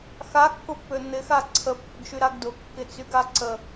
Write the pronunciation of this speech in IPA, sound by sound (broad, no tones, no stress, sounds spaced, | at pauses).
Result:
x a kː ʊ pː ø n̪ ɪ x a ǀʰ ə pː ʊ ɡ ʃ y ɾ a ɡ d ʊ kː ɪ t͡s y ɡ a ǀ ə